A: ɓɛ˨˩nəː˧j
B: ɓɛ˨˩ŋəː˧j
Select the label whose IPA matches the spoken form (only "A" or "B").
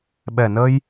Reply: A